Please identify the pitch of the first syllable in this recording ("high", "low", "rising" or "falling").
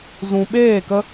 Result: low